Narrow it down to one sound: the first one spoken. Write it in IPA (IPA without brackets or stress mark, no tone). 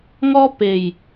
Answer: ŋ